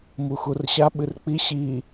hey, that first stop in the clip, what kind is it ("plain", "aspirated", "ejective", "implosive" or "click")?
implosive